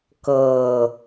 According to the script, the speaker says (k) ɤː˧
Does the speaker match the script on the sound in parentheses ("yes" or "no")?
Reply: yes